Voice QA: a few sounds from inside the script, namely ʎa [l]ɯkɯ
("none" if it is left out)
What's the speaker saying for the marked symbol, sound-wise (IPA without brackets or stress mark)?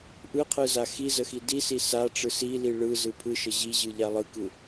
lˠ